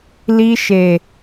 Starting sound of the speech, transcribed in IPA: l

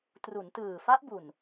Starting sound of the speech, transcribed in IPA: t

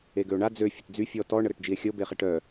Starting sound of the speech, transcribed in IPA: e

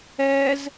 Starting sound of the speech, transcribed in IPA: ɛ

